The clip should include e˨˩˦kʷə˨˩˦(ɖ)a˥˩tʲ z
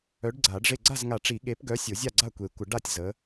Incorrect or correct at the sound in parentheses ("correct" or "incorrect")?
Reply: correct